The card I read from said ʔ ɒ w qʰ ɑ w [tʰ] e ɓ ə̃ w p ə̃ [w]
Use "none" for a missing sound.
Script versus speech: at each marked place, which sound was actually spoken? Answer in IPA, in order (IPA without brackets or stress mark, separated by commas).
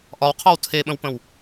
tʰ, w